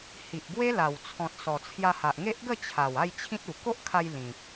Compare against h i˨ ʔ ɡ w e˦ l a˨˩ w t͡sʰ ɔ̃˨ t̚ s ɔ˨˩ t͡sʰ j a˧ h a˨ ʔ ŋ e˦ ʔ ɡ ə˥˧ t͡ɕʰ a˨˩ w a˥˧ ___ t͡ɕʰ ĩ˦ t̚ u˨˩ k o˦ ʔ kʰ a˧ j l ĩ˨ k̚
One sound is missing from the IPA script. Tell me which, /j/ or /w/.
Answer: j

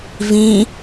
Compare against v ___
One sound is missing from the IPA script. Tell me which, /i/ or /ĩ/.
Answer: ĩ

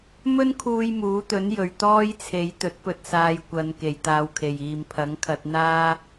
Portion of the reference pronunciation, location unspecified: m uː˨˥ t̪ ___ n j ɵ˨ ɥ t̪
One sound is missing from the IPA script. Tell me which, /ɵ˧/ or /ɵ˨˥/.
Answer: ɵ˨˥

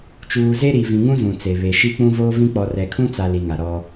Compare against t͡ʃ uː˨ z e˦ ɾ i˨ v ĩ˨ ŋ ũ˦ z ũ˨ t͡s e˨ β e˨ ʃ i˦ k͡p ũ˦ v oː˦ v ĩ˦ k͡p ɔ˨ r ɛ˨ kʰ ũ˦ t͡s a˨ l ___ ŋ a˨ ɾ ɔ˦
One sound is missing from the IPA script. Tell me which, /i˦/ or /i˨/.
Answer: i˨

